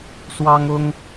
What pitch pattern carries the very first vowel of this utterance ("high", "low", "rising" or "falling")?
high